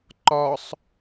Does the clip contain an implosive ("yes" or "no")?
no